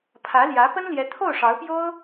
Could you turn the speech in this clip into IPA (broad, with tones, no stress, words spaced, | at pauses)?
pʰä˧˥ljä˧˥ pə˥nljɛ˧˥ t̪ʰo˥˩ʊ̯ʂɑ˧˥ʊ̯pjo˥ʊ̯